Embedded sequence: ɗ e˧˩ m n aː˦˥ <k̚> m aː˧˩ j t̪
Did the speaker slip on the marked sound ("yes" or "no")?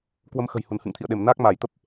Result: no